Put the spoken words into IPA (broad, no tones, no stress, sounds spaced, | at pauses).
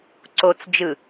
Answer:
ǀ o t͡s d͡ʒ ɯ